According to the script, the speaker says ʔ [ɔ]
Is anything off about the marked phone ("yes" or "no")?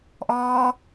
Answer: yes